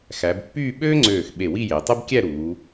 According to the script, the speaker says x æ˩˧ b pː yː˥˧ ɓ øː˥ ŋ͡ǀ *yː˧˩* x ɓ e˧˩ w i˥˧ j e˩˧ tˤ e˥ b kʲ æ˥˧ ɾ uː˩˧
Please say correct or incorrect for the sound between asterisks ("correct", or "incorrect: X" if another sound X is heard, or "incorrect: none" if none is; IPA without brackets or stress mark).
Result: incorrect: øː˧˩